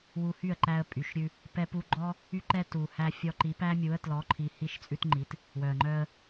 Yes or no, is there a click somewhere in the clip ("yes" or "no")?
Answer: yes